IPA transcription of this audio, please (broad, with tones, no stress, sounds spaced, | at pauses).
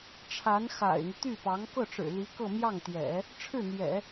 ʈ͡ʂʰ a˧˥ n x a̰˨˩ ɪ̯ n̪ y˦ t̪ y˥˩ p ɑ˧˥ ŋ k ɤ˥˩ ʈ͡ʂ ɻ̩˨˩ l i˧˥ k ɤ˥˧ m j ɑ˥˩ ŋ t̪ j ɛ̰˨˩˦ | ʈ͡ʂʰ ɻ̩˥˩ n̪ j ɛ̰˨˩˦